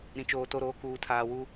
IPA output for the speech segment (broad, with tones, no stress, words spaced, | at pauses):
ɾĩ˨t͡ʃoː˨to˦˨ɾoː˦ kuː˨tʰaː˨wu˦